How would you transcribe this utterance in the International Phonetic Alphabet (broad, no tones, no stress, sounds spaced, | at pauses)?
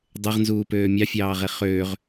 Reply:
dˤ e ʁ n z uː p øː mʲ ɑ fʲ ɑː ʁ e χ øː ʁ